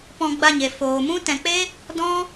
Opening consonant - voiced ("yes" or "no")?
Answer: no